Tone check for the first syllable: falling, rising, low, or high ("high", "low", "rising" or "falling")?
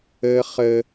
low